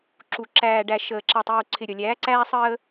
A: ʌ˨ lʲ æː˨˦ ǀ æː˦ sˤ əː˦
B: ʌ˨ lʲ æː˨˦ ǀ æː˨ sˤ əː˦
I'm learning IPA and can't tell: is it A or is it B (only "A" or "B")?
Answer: A